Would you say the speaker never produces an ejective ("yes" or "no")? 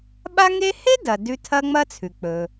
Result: yes